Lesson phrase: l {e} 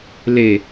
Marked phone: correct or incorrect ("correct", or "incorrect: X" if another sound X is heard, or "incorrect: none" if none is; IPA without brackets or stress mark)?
correct